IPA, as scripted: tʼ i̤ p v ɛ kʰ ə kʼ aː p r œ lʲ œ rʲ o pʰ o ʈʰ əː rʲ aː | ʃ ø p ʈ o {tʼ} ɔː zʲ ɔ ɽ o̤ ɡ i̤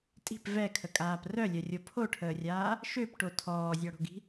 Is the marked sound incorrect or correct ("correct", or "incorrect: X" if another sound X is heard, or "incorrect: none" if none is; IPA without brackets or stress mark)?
incorrect: tʰ